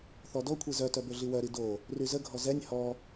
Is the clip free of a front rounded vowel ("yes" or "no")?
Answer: no